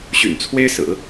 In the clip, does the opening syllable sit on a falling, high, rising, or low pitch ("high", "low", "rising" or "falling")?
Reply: low